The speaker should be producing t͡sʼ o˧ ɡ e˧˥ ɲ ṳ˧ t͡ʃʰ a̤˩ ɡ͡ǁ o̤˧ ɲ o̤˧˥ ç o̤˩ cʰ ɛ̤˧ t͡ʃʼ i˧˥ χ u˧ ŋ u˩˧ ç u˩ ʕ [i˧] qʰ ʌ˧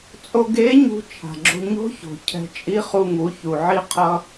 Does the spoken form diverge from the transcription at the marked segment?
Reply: no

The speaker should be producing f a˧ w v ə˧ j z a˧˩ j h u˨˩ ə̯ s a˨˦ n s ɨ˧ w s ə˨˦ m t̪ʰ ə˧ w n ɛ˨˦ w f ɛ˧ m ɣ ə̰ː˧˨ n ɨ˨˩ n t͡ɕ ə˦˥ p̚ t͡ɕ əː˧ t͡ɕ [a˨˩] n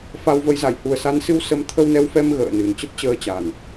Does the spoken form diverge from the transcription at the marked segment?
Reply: no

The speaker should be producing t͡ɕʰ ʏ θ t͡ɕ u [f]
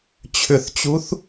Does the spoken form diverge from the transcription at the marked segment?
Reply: yes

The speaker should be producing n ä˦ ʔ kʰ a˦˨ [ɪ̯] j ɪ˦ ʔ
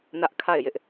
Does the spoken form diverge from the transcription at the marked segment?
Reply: no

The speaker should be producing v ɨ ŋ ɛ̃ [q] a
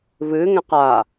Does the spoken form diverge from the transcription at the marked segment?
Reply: no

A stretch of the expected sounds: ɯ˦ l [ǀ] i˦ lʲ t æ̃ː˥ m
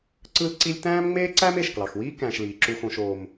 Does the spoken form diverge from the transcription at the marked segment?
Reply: no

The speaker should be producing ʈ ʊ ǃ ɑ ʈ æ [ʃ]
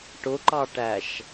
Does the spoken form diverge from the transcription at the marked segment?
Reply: no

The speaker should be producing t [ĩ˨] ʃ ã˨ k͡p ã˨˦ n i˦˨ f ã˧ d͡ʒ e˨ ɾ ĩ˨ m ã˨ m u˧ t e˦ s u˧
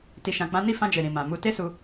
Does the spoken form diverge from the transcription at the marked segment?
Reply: yes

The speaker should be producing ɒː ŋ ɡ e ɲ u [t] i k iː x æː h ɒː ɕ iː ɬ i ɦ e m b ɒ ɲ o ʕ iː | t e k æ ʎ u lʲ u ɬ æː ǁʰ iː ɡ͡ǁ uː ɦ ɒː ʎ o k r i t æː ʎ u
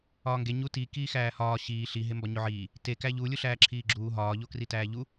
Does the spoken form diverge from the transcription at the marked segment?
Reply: no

